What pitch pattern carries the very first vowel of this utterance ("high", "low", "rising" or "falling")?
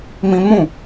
high